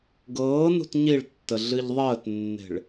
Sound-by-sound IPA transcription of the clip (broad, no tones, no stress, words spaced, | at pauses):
ɡɤːnṳt ɲiɭtːə ɮɨʎðˤəːtnːe̤ɭ